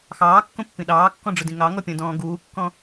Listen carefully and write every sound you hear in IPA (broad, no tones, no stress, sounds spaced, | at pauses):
x ɑː kː õ pː ĩ ɗ ɑː kː ɔ̃ ɖ͡ʐ ʊ d ĩ ŋ ɑ ŋ ɔ pʲ ɔ̃ d ɔ̃ː ɡ uː kː ɔ̃